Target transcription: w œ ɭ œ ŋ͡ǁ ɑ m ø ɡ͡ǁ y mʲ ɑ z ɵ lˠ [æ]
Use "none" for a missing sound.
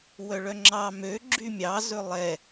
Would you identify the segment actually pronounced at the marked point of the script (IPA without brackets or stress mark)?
ɛ